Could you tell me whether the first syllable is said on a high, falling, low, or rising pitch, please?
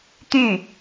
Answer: falling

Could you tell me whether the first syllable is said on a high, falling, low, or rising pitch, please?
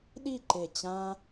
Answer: falling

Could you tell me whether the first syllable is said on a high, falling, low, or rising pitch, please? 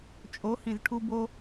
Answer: rising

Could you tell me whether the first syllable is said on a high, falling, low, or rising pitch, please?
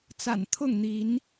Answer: low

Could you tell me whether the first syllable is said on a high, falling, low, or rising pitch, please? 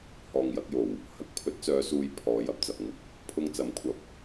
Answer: low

